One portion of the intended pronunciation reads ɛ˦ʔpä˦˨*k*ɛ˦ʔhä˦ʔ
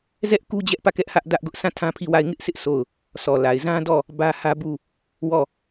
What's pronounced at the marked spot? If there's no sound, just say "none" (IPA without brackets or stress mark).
k